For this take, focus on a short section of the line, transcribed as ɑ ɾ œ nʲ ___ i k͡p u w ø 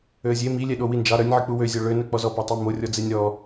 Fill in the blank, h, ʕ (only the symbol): ʕ